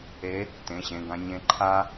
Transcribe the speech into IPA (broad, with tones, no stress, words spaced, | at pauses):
e˧˥ | tẽ˩˧˩ɕẽ˩˧˩ɡã˧ ɲẽ˧˥ǃʰa˥